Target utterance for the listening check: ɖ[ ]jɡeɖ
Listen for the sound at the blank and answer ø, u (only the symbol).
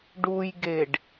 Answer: u